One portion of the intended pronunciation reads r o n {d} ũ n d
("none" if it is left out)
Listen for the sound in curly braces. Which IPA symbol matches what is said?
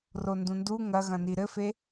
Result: d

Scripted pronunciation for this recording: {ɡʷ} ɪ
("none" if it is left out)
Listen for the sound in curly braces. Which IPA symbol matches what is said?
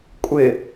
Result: kʷʼ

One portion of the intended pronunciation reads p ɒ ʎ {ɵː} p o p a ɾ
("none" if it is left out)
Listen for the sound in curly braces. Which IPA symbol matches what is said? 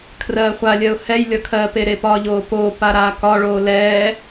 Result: oː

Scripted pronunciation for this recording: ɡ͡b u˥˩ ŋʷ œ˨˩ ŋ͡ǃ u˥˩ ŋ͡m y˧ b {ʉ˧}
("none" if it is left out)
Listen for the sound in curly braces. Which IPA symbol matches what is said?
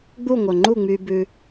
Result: ʉ˧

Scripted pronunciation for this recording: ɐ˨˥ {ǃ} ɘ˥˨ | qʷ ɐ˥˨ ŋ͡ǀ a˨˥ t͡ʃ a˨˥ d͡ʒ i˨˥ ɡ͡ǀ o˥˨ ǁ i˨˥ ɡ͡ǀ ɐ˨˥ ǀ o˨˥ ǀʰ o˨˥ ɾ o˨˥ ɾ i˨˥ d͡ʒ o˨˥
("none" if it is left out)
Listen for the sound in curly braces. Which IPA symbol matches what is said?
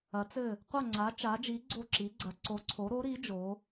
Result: t͡s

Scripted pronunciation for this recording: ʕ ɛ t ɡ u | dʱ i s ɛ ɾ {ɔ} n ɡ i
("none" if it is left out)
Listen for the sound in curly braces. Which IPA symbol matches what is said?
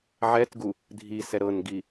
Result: ɤ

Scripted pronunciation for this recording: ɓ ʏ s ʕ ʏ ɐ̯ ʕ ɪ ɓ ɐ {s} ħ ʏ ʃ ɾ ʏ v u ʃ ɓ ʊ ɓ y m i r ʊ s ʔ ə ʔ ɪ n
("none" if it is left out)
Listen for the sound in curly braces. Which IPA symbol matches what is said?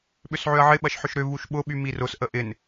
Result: ʃ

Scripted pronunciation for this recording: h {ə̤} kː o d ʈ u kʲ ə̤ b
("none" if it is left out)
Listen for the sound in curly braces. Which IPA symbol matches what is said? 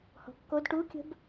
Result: ɔ̤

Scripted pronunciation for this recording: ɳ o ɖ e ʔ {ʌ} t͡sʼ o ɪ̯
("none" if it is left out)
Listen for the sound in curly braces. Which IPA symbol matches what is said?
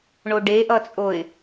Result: ʌ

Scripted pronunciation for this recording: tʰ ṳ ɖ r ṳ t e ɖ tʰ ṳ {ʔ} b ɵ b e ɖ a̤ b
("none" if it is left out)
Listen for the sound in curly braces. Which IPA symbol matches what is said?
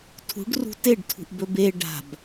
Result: ʔ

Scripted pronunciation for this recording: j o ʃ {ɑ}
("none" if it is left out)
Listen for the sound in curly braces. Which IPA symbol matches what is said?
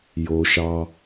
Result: ɑ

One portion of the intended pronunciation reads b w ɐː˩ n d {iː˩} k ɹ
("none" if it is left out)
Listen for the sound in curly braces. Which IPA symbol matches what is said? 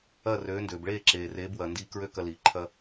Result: iː˧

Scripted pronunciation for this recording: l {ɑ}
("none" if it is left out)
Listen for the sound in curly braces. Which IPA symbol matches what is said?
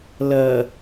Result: ʌ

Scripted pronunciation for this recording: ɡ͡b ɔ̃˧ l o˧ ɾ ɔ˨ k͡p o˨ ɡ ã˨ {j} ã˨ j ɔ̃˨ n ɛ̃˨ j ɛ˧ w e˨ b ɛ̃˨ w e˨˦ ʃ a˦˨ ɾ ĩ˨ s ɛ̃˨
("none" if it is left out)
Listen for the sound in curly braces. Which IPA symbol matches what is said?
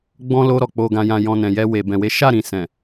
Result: j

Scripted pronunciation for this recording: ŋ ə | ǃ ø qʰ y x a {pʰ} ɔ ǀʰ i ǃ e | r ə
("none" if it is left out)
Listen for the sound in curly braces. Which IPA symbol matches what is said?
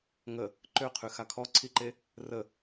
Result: kʰ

